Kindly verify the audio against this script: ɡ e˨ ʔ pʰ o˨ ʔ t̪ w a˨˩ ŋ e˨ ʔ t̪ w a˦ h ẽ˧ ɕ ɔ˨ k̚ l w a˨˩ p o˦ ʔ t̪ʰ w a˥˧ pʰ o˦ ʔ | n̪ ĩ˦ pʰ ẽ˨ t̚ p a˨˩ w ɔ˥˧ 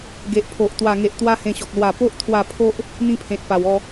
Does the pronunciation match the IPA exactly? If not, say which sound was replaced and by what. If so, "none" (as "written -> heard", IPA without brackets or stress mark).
none